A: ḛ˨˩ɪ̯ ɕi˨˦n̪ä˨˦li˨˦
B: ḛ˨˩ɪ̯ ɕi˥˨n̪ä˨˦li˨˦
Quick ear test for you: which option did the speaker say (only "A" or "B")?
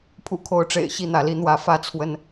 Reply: B